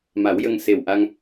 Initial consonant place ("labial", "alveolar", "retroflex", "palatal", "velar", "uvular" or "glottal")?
labial